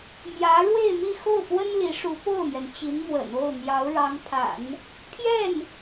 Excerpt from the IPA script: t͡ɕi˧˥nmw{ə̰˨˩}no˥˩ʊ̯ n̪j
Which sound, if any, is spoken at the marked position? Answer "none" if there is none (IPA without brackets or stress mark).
ə̰˨˩